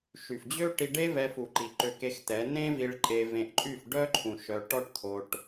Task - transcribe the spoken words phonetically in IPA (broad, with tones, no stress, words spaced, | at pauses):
ʃy˨fd͡ʑø˦ ʈi˧ɖe˦vɛ˧fu˨ ǃi˨ǃø˧ke˧xtɛ˨˦ nẽ˦vi˧ɭ ǃʼe˧vẽ˧ʔǃʼy˦˨f ɖœ˦ǃʰũ˨ ʃœ˧ ʈɔ˦ʈt̪ʰo˧ʈ